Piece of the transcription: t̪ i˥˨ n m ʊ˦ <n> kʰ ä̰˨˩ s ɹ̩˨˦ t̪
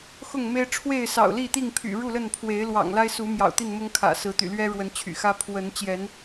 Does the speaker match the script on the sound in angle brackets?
no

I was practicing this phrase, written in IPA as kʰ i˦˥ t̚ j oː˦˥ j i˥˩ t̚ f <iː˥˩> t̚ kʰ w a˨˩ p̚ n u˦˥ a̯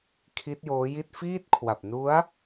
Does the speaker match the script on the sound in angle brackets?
yes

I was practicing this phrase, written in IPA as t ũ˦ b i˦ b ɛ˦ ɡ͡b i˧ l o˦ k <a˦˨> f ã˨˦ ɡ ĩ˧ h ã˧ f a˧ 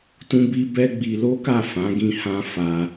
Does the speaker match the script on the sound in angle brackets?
yes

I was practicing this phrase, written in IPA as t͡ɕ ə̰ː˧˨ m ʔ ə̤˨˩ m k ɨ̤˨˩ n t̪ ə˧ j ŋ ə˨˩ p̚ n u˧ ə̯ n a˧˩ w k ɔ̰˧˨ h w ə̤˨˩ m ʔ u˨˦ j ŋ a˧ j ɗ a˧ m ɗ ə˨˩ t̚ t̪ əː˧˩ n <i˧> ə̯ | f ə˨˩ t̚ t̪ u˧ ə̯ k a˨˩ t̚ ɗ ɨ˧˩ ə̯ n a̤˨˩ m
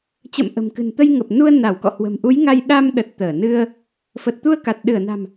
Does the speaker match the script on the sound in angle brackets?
no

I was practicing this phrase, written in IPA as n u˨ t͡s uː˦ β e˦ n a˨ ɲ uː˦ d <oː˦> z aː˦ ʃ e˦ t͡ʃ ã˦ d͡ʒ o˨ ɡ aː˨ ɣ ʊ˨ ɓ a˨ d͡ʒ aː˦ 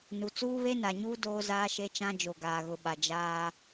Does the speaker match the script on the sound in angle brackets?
yes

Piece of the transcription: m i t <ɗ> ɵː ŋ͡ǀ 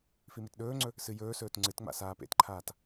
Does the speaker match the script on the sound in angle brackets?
yes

